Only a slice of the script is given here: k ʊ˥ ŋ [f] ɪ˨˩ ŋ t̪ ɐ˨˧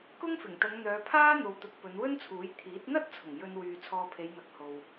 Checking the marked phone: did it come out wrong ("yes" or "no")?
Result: no